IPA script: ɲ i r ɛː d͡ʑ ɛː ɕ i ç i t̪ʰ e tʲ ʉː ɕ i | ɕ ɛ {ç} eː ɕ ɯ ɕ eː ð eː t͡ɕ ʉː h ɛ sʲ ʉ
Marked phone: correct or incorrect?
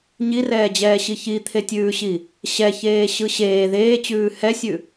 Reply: correct